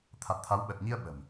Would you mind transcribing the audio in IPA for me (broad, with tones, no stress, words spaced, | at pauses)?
t̪ʰa˨˩t̚t̪ʰa˨˦wɓəː˨˩t̚ɲi˧ə̯ ɓə̤˨˩m